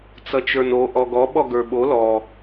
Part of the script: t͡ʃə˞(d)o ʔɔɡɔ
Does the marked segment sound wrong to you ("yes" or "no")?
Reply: yes